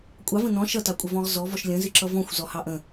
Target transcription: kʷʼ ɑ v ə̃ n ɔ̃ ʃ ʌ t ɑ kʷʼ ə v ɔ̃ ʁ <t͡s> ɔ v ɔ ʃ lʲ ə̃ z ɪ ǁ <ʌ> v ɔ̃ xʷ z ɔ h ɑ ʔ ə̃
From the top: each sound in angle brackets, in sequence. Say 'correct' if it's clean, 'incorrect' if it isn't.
incorrect, correct

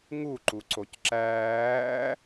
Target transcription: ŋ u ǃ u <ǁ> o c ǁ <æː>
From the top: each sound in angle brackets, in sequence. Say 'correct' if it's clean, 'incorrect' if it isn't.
incorrect, correct

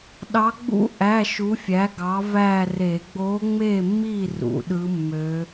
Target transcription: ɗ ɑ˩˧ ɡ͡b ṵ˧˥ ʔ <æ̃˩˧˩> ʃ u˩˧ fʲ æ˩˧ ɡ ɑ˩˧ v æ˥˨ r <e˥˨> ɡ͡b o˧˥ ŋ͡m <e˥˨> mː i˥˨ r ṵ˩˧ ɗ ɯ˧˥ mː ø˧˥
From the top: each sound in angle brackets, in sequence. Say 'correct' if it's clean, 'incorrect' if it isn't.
incorrect, incorrect, correct

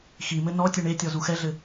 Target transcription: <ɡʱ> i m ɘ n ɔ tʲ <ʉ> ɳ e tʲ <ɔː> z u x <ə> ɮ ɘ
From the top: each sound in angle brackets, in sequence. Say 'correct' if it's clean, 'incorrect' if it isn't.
incorrect, incorrect, incorrect, incorrect

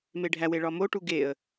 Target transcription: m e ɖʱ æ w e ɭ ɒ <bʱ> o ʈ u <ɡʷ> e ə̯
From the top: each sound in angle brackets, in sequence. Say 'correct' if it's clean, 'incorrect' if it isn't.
incorrect, incorrect

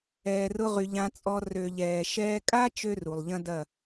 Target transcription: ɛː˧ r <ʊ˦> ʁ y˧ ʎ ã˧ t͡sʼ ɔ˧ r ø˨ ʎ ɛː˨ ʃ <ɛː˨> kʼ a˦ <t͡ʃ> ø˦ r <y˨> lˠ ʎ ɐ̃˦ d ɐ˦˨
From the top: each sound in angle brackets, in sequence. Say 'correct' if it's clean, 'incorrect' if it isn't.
correct, incorrect, correct, incorrect

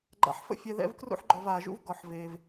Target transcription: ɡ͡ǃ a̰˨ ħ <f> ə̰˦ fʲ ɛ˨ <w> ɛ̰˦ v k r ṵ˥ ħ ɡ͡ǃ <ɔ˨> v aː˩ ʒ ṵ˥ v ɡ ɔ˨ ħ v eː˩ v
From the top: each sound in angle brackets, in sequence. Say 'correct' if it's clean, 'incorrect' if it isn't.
correct, incorrect, correct

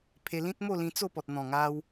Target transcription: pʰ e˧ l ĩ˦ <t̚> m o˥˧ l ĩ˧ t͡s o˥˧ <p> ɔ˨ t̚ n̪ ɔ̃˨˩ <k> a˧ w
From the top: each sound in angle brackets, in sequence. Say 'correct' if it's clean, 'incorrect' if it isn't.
correct, correct, incorrect

